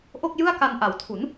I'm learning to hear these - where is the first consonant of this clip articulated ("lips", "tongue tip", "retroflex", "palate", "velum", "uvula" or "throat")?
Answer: throat